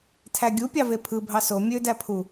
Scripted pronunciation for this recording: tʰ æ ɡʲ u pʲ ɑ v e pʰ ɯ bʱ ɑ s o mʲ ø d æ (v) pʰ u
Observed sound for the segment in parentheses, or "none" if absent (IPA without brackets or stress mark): none